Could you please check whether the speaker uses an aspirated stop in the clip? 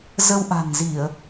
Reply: no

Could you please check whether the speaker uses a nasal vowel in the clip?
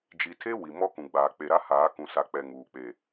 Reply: yes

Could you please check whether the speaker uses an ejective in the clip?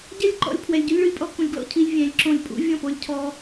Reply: yes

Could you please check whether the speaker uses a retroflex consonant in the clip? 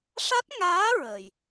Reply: yes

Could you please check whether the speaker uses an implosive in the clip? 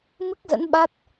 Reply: yes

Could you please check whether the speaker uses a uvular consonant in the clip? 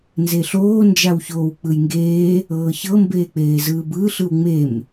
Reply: no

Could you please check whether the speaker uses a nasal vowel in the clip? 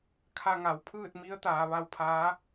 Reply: no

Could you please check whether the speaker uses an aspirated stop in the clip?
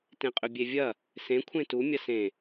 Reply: yes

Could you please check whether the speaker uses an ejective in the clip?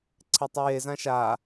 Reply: no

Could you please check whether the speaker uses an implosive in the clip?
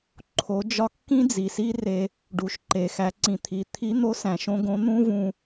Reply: no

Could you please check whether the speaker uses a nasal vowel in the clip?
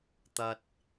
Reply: no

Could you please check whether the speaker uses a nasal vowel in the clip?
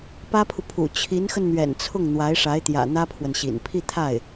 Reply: no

